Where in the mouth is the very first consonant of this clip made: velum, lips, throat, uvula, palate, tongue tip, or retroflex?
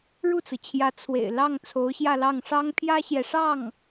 retroflex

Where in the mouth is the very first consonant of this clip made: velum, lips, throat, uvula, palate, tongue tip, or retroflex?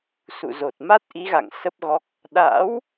tongue tip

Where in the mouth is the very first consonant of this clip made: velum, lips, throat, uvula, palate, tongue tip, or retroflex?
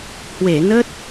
throat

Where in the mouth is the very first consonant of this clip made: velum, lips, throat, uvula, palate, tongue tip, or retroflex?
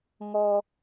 velum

